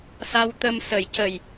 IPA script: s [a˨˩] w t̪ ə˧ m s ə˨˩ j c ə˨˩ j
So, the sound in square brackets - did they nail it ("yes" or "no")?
no